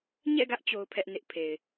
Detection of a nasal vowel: absent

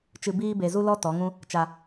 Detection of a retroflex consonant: absent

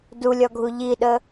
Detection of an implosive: present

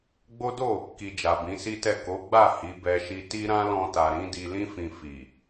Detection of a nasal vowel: present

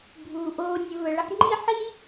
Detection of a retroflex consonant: present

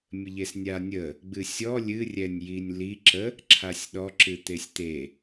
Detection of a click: present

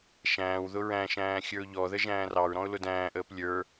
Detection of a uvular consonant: absent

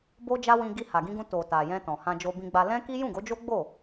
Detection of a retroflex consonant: absent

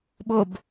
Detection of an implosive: present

